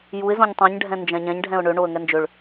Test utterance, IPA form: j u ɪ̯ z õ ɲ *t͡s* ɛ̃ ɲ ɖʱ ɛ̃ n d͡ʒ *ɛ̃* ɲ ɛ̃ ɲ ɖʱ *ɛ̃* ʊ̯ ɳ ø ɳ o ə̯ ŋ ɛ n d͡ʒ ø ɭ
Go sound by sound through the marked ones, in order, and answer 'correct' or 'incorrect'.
incorrect, correct, correct

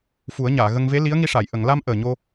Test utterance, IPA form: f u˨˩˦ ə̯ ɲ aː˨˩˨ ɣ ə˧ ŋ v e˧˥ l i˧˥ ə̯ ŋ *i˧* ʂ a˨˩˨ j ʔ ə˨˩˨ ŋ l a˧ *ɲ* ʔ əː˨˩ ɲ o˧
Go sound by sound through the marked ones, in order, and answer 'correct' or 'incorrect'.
correct, incorrect

